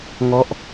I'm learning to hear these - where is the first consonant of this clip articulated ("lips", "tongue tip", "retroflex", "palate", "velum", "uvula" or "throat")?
velum